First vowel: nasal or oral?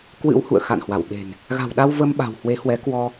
oral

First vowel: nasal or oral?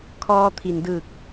oral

